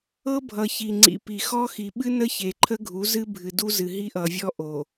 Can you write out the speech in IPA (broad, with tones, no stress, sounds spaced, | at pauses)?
ɤ˦ bʱ ʌ˨ ç i˨ ŋ͡ǀ ḭ˨ p i˨ x ɔ˦ x i˨ ɓ ɨ˦ n ə˦ ç e˨ ǃʰ ə˦ ɡʱ u˨˦ z ɨ˦ bʱ ɨ˨ d u˦ z ɨ˨ ɦ i˦ ʔ ʌ˨ vʲ ɔ˦ ʔ o˨